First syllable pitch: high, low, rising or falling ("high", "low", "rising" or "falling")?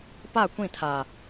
falling